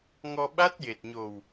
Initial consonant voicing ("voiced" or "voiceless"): voiced